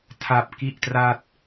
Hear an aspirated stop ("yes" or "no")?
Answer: yes